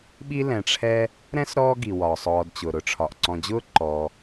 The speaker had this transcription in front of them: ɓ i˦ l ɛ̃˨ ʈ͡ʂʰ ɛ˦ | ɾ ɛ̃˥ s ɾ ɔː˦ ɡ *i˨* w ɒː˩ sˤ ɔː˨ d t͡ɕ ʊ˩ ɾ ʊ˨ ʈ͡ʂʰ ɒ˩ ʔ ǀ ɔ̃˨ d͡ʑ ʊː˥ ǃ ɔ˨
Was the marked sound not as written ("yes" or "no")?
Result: yes